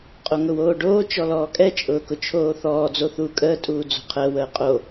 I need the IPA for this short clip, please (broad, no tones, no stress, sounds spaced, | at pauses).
qʼ o ŋ ʊ w oː ɖ oː t͡ʃ ɔ l ɔː kʼ ɛ t͡ʃʼ ʊː k ʊ t͡ʃʰ oː θ ɔː d͡z o θ uː kʼ əː tʼ uː d͡z o̤ qʰ əː w əː qʼ o